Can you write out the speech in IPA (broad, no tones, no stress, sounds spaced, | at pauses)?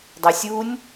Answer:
dˤ o sʲ u nʲ